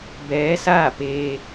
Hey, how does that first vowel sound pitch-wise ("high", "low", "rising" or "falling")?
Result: rising